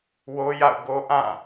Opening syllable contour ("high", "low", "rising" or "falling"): high